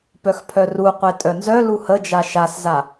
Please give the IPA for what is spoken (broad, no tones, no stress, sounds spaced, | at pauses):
p œ x pʰ œ r u qʷ e tʼ œ n z œ l u h ə d͡ʒ a ʃ a s z a